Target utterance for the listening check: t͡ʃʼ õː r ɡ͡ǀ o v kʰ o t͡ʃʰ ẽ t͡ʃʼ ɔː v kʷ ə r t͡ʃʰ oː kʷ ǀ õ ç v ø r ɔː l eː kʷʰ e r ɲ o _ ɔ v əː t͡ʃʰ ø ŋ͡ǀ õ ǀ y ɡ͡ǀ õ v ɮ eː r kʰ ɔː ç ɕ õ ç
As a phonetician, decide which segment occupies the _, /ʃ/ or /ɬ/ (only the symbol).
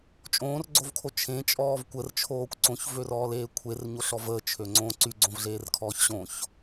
ɬ